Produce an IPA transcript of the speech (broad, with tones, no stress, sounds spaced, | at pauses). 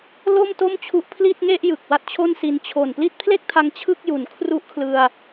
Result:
l o˥˩ m t o˥˩ m t͡ɕʰ u˦˥ ʔ pʰ l i˥˩ t̚ ŋ e˥˩ ʔ j ɯ˨˩ k̚ w a˦˥ t̚ t͡ɕʰ o˥˩ n s i˧ n t͡ɕʰ o˨˩ n p l i˦˥ t̚ pʰ l e˥˩ k̚ tʰ a˧ ŋ t͡ɕʰ ɯ˥˩ k̚ j u˨˩ n kʰ r u˦˥ ʔ kʰ l ɯ˧ a̯